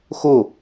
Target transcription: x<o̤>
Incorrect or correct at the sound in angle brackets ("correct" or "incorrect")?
incorrect